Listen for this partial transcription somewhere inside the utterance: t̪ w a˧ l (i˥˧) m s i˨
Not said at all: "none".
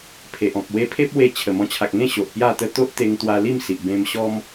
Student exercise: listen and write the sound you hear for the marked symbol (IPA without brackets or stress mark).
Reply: i˥˧